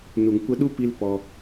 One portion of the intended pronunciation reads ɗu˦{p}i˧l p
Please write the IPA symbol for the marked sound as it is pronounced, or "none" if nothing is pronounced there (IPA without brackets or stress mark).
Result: p